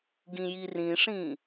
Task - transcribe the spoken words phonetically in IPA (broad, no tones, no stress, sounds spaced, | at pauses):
ɡ ĩ j i r ĩ ʂ ĩ